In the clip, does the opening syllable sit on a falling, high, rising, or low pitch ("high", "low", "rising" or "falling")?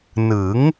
rising